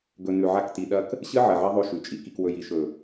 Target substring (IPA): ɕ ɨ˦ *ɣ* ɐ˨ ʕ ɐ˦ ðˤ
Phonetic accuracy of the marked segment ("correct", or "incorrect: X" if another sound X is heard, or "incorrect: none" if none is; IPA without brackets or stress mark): incorrect: ʕ